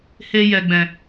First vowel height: mid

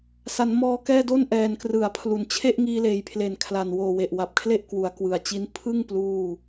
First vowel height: low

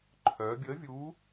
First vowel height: mid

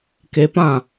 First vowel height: mid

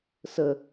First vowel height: mid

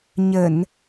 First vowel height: mid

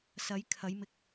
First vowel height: low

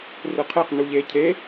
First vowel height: high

